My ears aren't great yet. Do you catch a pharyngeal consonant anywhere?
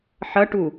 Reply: yes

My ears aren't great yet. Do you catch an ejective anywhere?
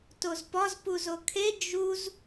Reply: no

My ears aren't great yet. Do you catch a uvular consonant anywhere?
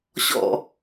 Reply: no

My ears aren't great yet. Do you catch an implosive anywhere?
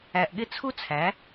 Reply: yes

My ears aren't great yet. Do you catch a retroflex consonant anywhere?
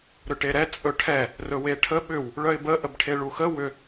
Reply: yes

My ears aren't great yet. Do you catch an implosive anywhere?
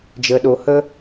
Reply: yes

